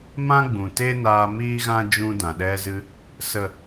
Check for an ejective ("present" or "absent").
absent